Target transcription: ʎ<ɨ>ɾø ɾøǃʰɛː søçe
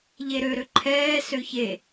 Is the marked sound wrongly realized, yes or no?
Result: yes